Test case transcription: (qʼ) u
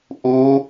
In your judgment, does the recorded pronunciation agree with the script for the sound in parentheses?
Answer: no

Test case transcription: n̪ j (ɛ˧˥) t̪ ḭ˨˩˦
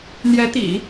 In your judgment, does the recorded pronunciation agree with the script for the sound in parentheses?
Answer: yes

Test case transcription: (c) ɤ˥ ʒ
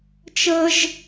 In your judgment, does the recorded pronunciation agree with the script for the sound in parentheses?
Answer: no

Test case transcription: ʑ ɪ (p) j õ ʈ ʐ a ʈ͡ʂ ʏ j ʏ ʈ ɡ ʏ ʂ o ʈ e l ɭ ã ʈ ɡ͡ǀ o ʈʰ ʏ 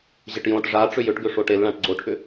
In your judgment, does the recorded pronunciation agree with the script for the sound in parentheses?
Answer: no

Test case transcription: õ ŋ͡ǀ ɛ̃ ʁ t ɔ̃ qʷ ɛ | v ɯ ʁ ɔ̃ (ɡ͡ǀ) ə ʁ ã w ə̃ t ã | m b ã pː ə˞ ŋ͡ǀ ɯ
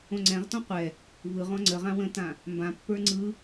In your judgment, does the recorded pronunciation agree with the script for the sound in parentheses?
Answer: no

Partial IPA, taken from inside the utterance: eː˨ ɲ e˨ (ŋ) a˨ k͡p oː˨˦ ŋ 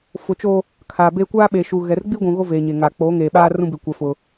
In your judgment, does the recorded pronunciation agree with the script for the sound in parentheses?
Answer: yes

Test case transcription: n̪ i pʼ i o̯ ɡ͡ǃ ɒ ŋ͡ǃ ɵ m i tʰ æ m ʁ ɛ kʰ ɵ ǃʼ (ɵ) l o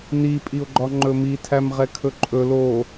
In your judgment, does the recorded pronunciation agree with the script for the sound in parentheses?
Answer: yes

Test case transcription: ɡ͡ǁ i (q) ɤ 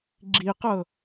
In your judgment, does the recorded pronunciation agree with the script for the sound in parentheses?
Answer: yes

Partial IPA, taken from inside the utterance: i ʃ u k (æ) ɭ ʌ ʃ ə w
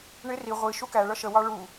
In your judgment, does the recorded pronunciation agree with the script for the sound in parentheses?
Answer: yes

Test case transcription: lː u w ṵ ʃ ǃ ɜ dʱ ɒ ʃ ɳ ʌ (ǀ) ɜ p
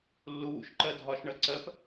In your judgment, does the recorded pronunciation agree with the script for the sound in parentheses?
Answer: yes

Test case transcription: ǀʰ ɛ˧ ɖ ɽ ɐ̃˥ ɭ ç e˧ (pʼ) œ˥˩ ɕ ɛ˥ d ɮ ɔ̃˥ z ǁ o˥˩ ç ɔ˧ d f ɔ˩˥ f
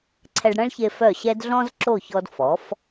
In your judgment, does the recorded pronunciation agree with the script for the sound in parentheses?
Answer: no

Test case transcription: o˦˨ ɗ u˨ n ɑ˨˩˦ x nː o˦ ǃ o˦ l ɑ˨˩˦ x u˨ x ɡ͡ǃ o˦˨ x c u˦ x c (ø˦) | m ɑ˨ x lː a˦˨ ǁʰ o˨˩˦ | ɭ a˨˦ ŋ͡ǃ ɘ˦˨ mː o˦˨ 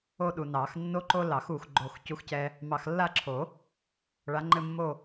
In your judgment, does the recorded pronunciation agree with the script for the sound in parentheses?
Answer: no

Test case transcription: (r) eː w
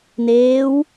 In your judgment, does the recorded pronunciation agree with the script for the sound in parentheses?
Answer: no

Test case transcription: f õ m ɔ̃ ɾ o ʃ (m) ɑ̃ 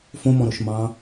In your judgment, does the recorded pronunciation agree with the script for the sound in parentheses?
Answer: yes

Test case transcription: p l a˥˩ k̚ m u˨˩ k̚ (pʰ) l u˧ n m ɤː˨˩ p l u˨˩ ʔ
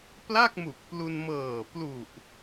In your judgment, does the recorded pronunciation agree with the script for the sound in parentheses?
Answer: no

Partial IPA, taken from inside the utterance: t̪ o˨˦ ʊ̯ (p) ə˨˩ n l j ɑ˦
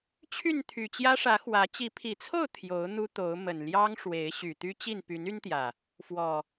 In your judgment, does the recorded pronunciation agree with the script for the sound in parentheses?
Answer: no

